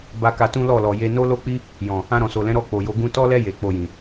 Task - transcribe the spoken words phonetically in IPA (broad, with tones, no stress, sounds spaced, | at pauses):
b a˧ k a˧ t ũ˦ l ɔ˦˨ l ɔ˨ j e˧ n o˦ l o˦ k͡p i˦ | j ɔ̃˨ | ã˧ ɾ ɔ̃˨ s o˨ l ɛ̃˨˦ ɾ ɔ˦˨ k͡p o˨ j o˨˦ ɡ ũ˧ t ɔ˦ l ɛ˦ j e˧ k͡p o˧ j ĩ˨